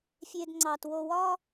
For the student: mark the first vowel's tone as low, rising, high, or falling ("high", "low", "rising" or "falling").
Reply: low